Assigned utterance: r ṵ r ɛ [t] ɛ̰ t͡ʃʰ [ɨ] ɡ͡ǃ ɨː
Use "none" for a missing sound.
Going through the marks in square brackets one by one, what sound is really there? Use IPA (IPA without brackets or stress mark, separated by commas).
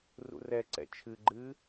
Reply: ǀ, ɨ